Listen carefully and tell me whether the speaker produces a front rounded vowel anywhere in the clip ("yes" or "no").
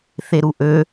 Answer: yes